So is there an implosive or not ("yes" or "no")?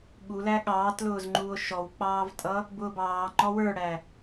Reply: yes